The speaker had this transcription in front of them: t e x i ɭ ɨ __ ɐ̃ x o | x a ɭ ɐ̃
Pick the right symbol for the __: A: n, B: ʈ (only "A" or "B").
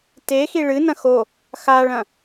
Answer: A